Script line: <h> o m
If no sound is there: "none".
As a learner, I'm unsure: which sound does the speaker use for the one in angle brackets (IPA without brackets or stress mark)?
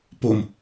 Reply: p